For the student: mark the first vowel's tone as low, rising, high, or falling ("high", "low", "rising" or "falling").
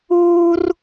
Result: high